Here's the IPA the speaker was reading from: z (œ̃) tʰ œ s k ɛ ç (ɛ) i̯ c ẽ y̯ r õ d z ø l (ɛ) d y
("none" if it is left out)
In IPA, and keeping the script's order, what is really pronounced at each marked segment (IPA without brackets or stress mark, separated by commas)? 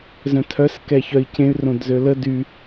œ̃, œ, ə